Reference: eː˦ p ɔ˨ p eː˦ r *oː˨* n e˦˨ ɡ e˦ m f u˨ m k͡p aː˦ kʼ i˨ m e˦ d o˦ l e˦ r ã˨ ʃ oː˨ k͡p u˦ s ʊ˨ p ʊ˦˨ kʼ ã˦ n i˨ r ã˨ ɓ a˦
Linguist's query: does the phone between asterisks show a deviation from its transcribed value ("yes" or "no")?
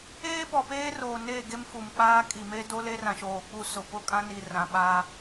no